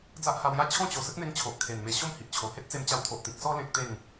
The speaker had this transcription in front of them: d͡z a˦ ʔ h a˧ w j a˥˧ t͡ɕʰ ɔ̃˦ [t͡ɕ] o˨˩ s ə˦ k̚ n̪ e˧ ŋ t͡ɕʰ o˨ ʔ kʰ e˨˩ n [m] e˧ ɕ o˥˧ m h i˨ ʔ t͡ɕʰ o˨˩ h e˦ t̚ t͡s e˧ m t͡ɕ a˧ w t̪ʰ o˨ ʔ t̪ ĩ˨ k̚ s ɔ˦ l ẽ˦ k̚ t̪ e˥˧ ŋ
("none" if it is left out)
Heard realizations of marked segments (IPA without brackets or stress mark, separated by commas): t͡ɕ, m